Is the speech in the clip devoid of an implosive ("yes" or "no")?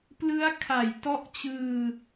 yes